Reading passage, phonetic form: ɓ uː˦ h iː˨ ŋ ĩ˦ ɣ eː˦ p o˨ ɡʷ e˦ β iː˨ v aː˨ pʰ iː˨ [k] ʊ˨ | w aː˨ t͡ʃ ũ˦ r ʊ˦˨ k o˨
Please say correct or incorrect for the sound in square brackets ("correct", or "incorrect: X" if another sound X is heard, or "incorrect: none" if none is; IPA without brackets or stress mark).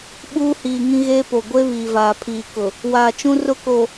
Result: correct